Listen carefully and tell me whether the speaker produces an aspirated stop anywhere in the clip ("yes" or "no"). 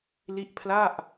yes